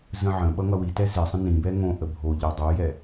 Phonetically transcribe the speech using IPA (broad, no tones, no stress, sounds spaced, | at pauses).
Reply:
z ə̃ ʕ ə̃ ɓ ʌ ŋ ʌ w i t ɛ z ɪ sˤ ə̃ n ĩ b ɛ ŋ õ ʔ ə bʱ o ʎ ʌ dˤ o j ɛ